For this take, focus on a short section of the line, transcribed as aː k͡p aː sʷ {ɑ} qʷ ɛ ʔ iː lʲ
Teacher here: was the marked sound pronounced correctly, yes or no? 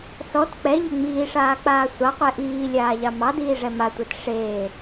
yes